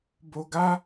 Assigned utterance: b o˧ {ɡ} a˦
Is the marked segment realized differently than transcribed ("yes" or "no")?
no